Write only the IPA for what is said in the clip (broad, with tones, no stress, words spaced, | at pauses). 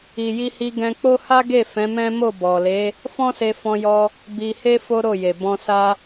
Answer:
i˨ji˧hi˧ ɡɛ̃˧k͡po˦ ha˦ɡe˦˨ fɛ̃˨˦mɛ̃˦ mo˦˨ bɔ˨le˨˦ | fɔ̃˦se˧fɔ̃˧jɔ˧ | bi˧he˦ fo˦ɾo˦˨je˨ bɔ̃˧ sa˧